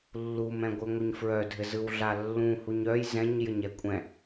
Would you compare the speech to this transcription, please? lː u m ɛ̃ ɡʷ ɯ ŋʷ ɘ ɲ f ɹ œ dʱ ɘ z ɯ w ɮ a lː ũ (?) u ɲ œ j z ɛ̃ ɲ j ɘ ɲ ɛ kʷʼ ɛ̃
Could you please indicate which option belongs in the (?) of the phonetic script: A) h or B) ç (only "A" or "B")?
A